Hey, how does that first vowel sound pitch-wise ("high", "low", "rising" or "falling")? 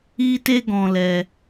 high